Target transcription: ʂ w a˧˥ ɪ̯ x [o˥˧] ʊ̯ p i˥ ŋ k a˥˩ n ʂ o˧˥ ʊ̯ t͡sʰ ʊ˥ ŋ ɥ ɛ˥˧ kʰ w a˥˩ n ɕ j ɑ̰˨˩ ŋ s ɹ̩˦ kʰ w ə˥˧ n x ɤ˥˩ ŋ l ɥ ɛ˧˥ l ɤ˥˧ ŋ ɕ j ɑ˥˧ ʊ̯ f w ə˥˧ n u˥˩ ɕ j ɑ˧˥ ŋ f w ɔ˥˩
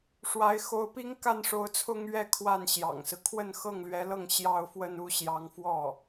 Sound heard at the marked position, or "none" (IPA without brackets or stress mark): o˧˥